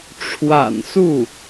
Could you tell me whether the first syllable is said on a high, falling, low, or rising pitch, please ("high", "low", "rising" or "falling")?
low